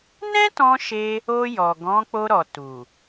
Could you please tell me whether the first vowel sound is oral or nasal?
nasal